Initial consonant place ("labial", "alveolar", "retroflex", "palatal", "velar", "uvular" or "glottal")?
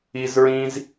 alveolar